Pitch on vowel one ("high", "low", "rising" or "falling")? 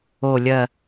low